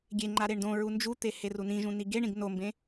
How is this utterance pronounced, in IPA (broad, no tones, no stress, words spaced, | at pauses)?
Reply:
ɡʲeŋ͡ǃa ɾeɳdõɹu nd͡ʒut̪e herunĩʒũ niɡeɳĩɡ nombẽ